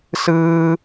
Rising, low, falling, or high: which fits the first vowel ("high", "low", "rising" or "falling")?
high